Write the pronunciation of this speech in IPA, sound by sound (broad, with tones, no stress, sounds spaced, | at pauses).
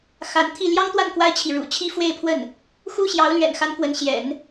x a˧˥ n t̪ʰ i˥˩ l j ɑ˥ ŋ t̪ w a˥˩ n k w a˥ ɪ̯ t͡ɕʰ i˨ ɻ ṵ˨˩ t͡ɕʰ i˥ f w e˥˧ ɪ̯ pʰ w ə˥˩ n | x u˥ ɕ j ɑ˧˥ ʊ̯ l ɥ ɛ̰˨˩ n x a˧˥ n k w ə˧˥ n ɕ j ɛ̰˨˩˦ n